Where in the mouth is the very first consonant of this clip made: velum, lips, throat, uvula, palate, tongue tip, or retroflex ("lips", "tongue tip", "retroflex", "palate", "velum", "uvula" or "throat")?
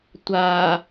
tongue tip